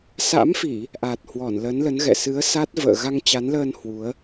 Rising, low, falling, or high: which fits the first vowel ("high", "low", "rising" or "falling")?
rising